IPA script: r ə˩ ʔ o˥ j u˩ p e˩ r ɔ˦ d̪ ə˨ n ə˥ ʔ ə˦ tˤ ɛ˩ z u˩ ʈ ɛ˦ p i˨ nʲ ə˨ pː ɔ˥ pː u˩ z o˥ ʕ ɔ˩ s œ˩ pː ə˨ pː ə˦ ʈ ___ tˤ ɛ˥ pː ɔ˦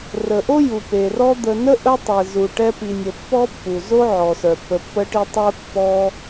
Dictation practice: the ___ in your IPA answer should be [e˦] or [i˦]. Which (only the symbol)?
i˦